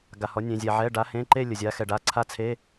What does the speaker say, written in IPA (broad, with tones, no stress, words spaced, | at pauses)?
ɡa˩hɔ˩˧ nʲẽ˩zʲɛ˩ʕɛ˩˧˩ ɖa˩˧hẽ˩˧˩ǃe˦˨ lʲə˩zʲa˩˧xɛ˩ɖa˩˧˩ ǀʰa˦˥t͡sʰe˧˥˧